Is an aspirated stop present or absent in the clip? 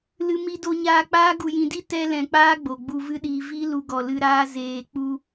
absent